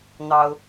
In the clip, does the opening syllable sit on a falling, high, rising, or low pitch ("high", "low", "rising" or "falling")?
high